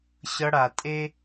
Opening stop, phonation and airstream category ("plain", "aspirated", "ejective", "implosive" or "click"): ejective